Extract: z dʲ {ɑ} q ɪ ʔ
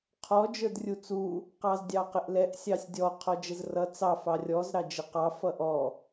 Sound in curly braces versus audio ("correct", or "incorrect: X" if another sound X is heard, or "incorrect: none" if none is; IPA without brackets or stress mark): correct